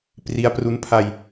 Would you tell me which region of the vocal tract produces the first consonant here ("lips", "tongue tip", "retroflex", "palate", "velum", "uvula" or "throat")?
lips